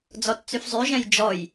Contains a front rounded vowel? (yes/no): yes